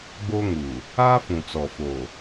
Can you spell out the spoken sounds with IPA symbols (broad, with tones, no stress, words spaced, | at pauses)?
ɡ͡bo˦ŋu˨ | aː˦fũ˨t͡sɔ˨ fo˨